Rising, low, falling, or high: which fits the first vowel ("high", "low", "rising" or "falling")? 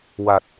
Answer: low